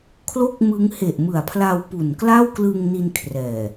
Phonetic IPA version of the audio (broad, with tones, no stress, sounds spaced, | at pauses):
kʰ l o˥˩ k̚ m ɯ˦˥ ŋ h e˨˩ ʔ m ɯ˨˩ a̯ pʰ l a˧ w p u˨˩ n k l a˥˩ w k l ɯ˧ ŋ n i˧ n kʰ r ɛː˨˩